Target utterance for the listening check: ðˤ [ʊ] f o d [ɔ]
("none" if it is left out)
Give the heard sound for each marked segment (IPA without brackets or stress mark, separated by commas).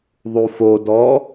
u, ɔ